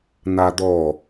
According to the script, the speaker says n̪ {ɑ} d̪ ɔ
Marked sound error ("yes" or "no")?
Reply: yes